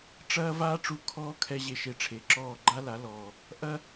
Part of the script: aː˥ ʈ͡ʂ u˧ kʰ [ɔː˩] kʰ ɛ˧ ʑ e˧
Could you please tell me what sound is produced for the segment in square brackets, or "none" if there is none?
ɔː˥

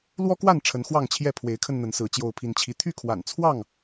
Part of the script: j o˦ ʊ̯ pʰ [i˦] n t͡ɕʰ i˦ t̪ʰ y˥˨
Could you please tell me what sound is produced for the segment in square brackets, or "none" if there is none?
i˦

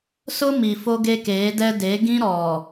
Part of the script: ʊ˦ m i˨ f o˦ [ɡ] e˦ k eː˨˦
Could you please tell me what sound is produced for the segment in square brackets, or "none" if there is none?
ɡ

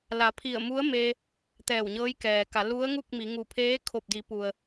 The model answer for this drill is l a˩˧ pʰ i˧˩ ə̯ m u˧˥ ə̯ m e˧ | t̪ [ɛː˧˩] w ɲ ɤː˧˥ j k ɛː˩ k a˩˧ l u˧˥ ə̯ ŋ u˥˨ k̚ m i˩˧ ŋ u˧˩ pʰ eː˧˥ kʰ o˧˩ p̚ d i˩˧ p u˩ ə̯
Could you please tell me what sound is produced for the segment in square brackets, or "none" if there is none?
ɛː˧˩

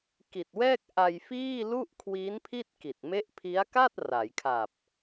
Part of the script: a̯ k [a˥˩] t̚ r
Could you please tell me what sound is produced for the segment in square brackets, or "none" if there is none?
a˥˩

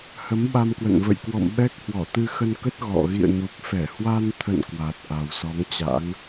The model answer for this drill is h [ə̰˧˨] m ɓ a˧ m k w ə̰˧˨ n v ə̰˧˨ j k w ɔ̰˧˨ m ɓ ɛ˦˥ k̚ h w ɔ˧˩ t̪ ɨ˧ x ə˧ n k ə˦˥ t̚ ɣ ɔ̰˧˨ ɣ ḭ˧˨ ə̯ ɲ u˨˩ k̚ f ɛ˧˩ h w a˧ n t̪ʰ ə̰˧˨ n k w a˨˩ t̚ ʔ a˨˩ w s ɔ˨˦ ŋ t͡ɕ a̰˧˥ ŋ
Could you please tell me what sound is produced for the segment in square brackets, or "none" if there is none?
ə˨˦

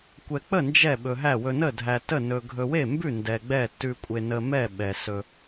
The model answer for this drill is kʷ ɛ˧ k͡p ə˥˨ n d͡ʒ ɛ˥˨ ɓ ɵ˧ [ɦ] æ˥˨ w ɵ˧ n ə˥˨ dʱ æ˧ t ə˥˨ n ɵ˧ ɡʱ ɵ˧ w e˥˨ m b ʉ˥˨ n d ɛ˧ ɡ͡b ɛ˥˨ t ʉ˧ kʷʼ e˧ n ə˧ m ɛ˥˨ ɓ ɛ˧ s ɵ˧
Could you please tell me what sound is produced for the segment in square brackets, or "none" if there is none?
ɦ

